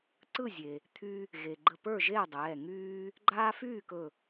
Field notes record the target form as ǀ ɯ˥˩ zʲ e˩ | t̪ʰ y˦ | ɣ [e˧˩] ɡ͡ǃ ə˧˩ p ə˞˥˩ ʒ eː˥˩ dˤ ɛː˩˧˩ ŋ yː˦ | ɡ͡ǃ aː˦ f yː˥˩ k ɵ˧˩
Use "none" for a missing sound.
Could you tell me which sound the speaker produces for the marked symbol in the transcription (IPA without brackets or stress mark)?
e˩